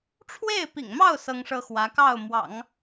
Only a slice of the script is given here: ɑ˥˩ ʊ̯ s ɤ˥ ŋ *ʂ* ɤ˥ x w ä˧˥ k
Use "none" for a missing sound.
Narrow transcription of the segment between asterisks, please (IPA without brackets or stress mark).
ʂ